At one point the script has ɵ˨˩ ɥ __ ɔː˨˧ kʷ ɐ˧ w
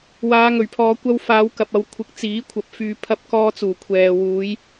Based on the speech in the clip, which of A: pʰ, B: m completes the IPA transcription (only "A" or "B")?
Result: A